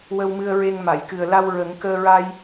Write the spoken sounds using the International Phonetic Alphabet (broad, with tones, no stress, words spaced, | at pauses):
wə˧wmɨ˧ə̯ɹe˧ŋ ma˨˩˨jkɨ˨˩ə̯la˧w ɹə˨˩˦ŋ kəː˧ɹa˧j